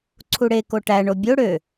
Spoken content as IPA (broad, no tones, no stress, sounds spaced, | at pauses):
ǀʰ u ɽ e k o ʈ æ ɳ o bʲ o ɽ ø